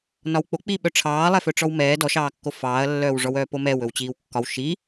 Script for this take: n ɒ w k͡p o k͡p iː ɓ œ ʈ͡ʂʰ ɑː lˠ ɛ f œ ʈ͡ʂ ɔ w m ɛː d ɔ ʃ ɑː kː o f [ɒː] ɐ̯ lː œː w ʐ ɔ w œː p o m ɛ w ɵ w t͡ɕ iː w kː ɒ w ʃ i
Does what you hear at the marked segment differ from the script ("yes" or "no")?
yes